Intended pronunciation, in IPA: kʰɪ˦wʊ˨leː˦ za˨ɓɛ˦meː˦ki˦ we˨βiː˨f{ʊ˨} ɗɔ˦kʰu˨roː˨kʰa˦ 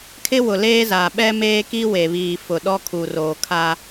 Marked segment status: correct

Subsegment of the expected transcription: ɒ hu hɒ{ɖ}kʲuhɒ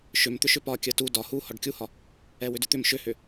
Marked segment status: correct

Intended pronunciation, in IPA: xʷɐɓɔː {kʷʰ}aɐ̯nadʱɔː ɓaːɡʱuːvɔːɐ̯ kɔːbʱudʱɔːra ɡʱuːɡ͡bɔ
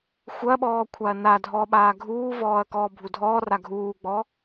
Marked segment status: correct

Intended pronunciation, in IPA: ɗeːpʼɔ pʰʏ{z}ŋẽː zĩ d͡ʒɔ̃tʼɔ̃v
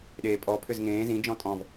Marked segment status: correct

